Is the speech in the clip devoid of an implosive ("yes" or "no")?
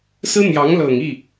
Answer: yes